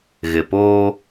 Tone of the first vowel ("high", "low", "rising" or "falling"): low